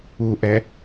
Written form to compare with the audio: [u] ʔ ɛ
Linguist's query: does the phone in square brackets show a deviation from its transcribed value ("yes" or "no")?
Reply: no